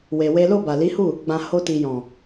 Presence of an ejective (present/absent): absent